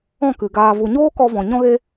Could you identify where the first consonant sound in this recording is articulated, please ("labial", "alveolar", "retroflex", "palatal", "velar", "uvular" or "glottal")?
velar